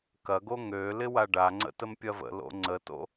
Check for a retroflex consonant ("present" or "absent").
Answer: present